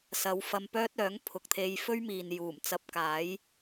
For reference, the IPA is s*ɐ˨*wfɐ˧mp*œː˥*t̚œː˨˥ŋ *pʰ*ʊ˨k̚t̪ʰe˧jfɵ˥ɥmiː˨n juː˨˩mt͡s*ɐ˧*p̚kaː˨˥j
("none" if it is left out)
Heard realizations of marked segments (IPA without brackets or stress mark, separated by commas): ɐ˨˧, œː˥, pʰ, ɐ˧